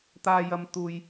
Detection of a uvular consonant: absent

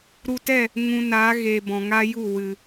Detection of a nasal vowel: present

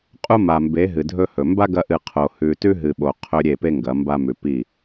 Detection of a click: absent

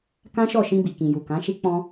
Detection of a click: absent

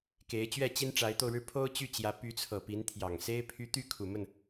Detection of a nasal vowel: absent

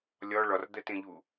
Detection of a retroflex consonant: present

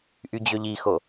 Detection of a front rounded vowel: present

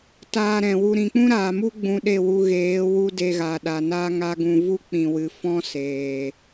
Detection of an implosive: present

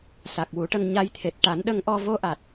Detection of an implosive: present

